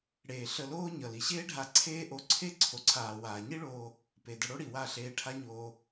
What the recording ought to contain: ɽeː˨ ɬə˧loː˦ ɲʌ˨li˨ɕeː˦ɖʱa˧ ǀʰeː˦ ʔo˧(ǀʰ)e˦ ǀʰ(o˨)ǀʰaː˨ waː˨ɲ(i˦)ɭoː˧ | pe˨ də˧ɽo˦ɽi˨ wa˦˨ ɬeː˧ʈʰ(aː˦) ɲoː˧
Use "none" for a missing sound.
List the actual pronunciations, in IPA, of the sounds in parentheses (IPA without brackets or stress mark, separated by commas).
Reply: ǀʰ, o˨, i˦, a˦